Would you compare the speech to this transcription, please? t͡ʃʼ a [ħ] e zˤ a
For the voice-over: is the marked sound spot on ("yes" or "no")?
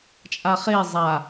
no